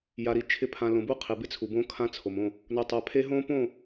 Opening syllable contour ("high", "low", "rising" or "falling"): low